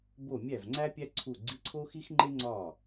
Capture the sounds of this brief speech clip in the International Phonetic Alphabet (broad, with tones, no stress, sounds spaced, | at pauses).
b o˥˩ mʲ æ˥˩ v ŋ͡ǀ æ˥ pʲ æ˥ ǀʰ u˥˩ ɡ͡ǀ i˧˥˧ ǀʰ o˥ x i˥ x ŋ͡ǃ e˥ ŋ͡ǀ ɒ˥˩